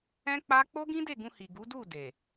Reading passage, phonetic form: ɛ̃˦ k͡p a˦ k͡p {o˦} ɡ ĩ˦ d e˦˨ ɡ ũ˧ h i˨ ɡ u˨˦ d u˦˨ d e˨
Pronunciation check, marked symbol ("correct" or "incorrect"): correct